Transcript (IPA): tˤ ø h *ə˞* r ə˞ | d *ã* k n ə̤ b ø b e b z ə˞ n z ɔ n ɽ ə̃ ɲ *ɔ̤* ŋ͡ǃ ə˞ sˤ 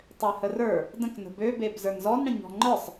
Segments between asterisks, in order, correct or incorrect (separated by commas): incorrect, incorrect, correct